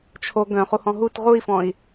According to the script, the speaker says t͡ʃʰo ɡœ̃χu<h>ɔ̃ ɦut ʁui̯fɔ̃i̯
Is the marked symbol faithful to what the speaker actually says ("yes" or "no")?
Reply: yes